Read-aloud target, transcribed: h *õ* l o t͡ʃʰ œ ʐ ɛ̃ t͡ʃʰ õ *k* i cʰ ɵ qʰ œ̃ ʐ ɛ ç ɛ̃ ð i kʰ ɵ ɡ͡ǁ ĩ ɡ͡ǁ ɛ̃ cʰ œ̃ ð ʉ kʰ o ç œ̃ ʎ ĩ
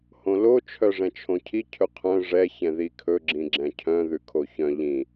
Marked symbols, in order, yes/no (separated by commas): yes, no